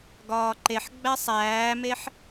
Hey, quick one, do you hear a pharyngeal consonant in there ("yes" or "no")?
yes